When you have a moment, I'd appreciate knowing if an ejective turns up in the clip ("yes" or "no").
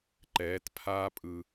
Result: yes